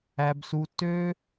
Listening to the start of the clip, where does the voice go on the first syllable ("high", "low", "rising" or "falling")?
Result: high